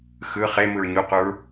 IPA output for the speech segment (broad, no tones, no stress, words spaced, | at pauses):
xɯ χemɯɹ ɲuquɹ